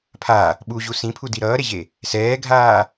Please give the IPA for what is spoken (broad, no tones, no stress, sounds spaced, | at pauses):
pʰ a | ɓ u ʑ u s ĩ pʰ u d i ɾ ʌː ɾ e ʑ e | s ɛː ɡʱ aː